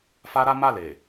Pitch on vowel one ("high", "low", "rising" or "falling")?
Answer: high